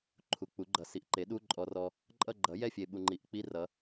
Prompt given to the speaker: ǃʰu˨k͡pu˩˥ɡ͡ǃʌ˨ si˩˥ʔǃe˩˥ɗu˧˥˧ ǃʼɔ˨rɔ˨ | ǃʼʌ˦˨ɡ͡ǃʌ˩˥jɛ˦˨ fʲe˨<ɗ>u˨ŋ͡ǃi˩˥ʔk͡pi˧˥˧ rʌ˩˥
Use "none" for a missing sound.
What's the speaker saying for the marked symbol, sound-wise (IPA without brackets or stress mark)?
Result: ɓ